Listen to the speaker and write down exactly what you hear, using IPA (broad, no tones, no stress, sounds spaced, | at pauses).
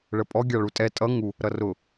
ɭ ə pʼ ɔ ɡʲ ɑ ɭ u tʼ ɛ tʼ ʌ ŋ u | ɾ ʌ r ʊ